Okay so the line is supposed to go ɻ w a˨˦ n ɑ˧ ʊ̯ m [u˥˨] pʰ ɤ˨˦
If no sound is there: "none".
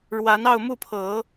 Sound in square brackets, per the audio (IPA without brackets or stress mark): u˥˨